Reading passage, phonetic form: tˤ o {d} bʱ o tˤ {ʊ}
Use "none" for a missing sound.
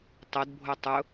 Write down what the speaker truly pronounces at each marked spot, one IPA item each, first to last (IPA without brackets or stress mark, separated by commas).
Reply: d, ʊ